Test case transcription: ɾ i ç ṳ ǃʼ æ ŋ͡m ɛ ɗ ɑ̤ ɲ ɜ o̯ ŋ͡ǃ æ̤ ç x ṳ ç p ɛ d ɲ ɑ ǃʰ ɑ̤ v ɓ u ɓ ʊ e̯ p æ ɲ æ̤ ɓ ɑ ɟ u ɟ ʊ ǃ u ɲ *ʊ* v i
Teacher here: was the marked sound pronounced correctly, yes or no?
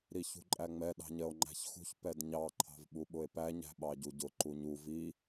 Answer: no